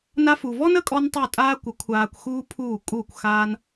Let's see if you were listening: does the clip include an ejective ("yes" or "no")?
yes